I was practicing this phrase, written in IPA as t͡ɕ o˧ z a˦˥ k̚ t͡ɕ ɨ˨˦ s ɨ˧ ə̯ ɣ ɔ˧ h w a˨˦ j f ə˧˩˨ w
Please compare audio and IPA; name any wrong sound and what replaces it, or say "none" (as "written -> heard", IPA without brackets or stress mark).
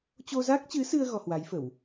none